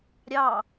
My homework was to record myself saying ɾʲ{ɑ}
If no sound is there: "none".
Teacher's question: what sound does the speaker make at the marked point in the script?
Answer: ɑ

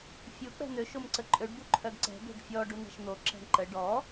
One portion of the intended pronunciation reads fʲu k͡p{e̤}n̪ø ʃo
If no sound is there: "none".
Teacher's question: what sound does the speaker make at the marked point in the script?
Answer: ɛ̤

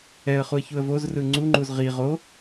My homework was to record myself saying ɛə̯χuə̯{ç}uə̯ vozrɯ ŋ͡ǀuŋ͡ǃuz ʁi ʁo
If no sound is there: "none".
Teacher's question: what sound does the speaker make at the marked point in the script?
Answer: ç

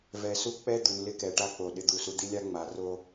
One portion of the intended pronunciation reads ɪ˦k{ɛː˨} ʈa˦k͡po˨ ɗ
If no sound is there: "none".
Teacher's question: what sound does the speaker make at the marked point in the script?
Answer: ɛ˨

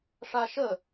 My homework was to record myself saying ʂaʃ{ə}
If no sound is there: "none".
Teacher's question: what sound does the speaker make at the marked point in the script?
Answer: ə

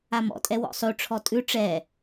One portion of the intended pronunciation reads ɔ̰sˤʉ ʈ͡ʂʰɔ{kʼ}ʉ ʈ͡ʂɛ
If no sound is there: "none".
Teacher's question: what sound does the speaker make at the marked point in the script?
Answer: tʼ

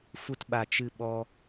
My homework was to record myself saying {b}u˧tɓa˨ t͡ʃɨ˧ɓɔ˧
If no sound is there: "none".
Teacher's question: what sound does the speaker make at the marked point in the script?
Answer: f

